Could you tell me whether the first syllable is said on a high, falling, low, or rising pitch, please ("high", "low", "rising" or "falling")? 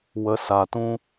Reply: low